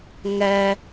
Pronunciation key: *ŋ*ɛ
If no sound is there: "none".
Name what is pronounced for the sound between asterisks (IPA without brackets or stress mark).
ŋ